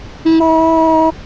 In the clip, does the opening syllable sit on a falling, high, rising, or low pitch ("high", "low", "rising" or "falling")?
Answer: high